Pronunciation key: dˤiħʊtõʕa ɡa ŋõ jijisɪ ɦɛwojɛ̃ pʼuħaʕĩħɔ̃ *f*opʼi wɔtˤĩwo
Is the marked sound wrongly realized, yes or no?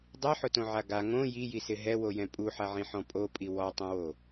yes